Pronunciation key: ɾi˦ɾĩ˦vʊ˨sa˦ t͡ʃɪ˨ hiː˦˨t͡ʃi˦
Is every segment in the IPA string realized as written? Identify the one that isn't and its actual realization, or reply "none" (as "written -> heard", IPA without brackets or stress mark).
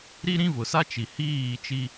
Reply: ɪ˨ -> i˨